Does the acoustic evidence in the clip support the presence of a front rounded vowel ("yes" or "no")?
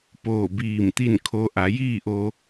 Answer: no